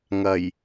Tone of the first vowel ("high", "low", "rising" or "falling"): low